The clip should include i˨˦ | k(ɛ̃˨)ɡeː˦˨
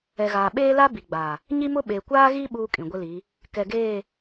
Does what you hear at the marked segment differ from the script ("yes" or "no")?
yes